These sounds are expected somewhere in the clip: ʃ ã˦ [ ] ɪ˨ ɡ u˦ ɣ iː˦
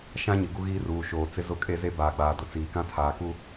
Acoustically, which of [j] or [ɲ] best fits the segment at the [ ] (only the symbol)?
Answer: ɲ